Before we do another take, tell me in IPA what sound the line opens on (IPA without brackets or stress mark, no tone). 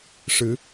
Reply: ʂ